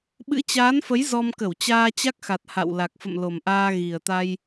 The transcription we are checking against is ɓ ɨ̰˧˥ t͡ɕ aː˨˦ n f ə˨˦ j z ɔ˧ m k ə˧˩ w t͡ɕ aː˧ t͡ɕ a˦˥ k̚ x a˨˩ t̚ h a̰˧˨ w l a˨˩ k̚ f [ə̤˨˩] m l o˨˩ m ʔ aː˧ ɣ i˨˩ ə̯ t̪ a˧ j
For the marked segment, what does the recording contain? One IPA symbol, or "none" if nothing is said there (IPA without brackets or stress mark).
ə̰˧˨